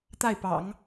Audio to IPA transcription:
t̪ a˥˩ ɪ̯ p ɑ̰˨˩˦ ŋ

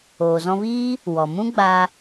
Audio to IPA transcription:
oː˨ z ɔ̃˧ v iː˦ | w ɔ˨ m ũ˦ ɡ͡b a˧

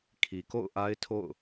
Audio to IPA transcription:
kʰ i˨ k o̰˦˨ ʊ̯ ʔ a˦ ɪ̯ tʰ o̰˦˨ ʊ̯

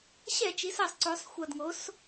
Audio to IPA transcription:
ɕ ɛ˧˩˧ t͡ʃ i˩˧ s a˨˩ sˤ ǀ o˩˧ sˤ xʷ ʌ˨˩ d ŋ o˩˧ s

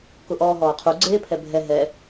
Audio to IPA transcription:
k ʊ ʔ ɔː ɦ ɔː qʰ u ɡ͡ǀ eː pʰ ɛ bʱ ɛ ɦ ɛ

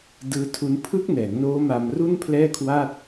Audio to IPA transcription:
d ɯː˦˥ tʰ u˦˥ n pʰ ɯ˦˥ k̚ n ɛː˩˦ ŋ n oː˦˥ m a˧ m r u˥˩ n pʰ l ɛː˥˩ kʰ w a˥˩ t̚

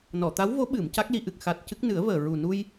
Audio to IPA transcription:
n ɔ˨˩˨ t̪ a˧˥ w v o˧˥ ɓ ɨ˨˩˨ m c a˦˥ k̚ l i˧ ʔ ɨ˨˩ k̚ x a˨˩ t̚ c ɨ˦˥ k̚ n ɨ˨˩˦ ə̯ v əː˨˩ ɹ u˨˩ n u˧ j

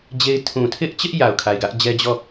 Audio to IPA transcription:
d͡ʑ e˦ ɪ̯ tʰ ũ˨ tʰ ɪ˦ ʔ t͡ɕ ɪ˦ ʔ j a˨ ʊ̯ kʰ a˨ ɪ̯ ɡ ä˦ ʔ d͡ʑ ɛ˦ d͡ʑ ɔ˦˨

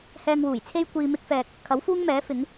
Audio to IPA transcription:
h ɛː˧ ŋ w uː˨˩ j t͡sʰ e˥ j kʷ iː˧ m ɪ˥ k̚ f ɛː˧ k̚ | kʰ ɐ˨˥ w f uː˥ ŋ m ɛː˨˥ f ɪ˨˥ ŋ

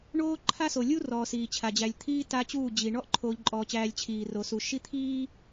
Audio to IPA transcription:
ɳ oː˦ ǃʰ a˦ s o˨ lʲ u˦ r ɔː˨ s iː˨ t͡ɕʰ a˨ d͡ʑ æ˨ lʲ t̪ʰ iː˦ t a˦ t͡ɕ uː˦˨ d͡ʑ i˨ ɳ ɔ˦ ʔ ǃʰ oː˨ ʎ ǃʼ ɔː˨ t͡ɕ æː˨ lʲ t͡ɕʰ iː˨ r o˨ s u˨ ʃ i˦ t̪ʰ iː˦

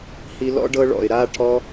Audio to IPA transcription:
h i˧ l ɔ̰˦ ɖ ɤ˦ ɭ ɔ̰˨ ɪ̯ ɾ a˦ ʈʰ ɔ˧

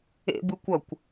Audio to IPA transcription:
ḛ b ɯ kʷ ʌ kʷ

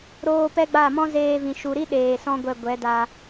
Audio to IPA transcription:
ɾ oː˧ p ɛ˦ ɡ͡b a˦˨ m ɔ̃˦ z eː˧ v ĩ˨ ʃ u˨ ɾ i˦ ɗ eː˨ s ɔ̃˦ ɡʷ ɛ˧ ɡʷ ɛ˨˦ d a˧

